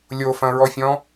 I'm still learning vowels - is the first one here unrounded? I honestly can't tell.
no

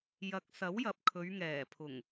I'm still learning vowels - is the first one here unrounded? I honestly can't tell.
yes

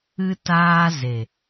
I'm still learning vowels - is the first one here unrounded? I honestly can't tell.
yes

